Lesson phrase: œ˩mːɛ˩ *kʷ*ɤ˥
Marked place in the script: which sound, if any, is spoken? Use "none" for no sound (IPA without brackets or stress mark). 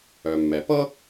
p